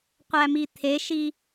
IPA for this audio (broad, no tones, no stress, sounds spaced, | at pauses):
qʷ æ m i t̪ʰ e ʃ i